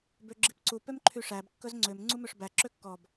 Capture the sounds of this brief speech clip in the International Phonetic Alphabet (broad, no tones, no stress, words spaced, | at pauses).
bøɡ͡ǁipǀu pømǃʰyʂæb kːɵzŋ͡ǀøm ŋ͡ǀumøʂbæ ǁøkːɔb